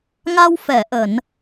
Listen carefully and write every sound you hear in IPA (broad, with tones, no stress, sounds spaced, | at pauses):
ŋ a˧ w f ɛ˧˩ ʔ ə˧˩˨ n